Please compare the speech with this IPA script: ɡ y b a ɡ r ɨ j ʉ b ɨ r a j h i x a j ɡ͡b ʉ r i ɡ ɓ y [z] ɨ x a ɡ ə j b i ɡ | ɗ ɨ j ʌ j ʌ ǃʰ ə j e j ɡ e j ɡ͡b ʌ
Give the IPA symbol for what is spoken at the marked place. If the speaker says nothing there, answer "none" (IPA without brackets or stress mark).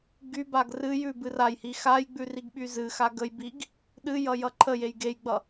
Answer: z